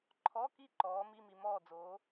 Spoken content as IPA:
ǃʰɔ˧˥˧ki˥˨ ǃɔː˨˥mi˧˥˧mi˨ mɔː˥˨d͡zoː˨˥

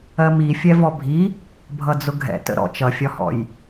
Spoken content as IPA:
ɜmi fʲɛvɔbʱi | bʱʌd͡zʊɡʱɛ̰ tə̰ɾɔ̰ t͡ʃʌfʲɒhɔ̰j

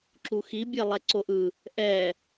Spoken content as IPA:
ǁuxi bʲelˠɛǀoʔɯ | ʔɛ

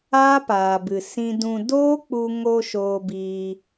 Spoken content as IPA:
aː˦paː˨bɨ˨ sĩ˧dũ˧ doː˦k͡pu˧ ŋo˧ ʃoː˧biː˧

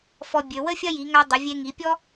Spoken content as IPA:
fɔ˧bʲø˩˧ wə˥fʲɐ˥ji˩˧ŋa˧ dˤə˩˧vʲe˧ŋi˩˧pʲɔ˥

